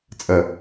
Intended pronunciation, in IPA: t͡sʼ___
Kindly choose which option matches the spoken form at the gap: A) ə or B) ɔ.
A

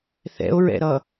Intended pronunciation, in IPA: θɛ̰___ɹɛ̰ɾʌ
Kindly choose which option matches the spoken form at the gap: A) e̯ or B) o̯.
B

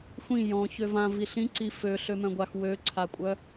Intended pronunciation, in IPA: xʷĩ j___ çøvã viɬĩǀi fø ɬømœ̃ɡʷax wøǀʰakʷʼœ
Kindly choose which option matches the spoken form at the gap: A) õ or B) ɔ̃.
B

